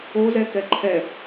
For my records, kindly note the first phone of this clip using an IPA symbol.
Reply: o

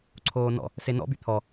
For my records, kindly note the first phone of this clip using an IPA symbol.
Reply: ǀʰ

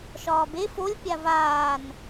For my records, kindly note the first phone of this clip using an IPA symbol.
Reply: ʃ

